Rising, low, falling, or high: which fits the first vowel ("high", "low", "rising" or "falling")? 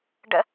high